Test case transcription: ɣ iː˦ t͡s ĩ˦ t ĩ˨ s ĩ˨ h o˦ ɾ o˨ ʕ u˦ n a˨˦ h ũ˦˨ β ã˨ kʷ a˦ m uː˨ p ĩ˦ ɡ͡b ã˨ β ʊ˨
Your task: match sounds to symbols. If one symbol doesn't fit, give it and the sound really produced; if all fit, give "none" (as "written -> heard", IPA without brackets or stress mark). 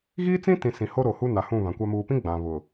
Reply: ʕ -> h